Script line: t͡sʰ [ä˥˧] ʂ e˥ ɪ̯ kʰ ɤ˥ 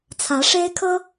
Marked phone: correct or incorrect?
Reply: incorrect